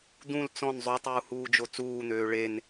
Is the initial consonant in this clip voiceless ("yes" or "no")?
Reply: no